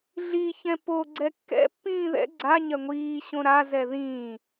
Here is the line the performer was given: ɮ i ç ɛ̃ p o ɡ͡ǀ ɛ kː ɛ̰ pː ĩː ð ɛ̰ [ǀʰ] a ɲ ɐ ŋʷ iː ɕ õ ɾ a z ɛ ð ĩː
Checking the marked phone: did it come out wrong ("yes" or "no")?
yes